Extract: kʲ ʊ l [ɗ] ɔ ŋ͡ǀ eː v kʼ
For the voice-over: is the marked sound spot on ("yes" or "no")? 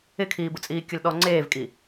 yes